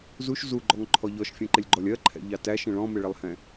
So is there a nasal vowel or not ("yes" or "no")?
yes